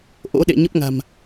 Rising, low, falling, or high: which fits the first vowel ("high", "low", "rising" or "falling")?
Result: rising